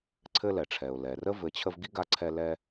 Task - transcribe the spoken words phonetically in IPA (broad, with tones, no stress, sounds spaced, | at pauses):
ǀʰ ɘ˥ l ɛ˩ ʈ͡ʂʰ ɛ˩ ʊ̯ l ɛ˩ r ə˥ v ɘ˨ t͡ɕʰ ə˦ v ɡ i˥ ɡ a˦ ǀʰ ɛ˦ l ɛ˦